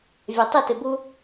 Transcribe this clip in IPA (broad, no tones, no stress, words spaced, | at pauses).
vʲatˤɪtɪ bu